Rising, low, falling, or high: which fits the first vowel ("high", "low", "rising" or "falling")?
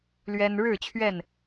high